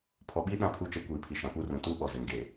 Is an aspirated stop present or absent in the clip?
present